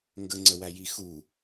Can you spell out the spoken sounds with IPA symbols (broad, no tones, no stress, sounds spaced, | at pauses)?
ŋ ɡ ə ŋ͡ǀ ə w æ j i x u